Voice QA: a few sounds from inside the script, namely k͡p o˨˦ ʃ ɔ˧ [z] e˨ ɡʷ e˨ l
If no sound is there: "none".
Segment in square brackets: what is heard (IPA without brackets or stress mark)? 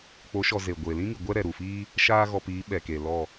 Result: z